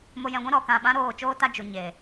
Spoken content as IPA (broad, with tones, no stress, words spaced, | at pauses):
mo˧jɛ̃˧ɡʷɛ̃˦ ɾɔ˦˨kã˦˨ ɓã˧ ɾoː˦˨t͡ʃoː˦ta˦ d͡ʒu˨ ɲe˨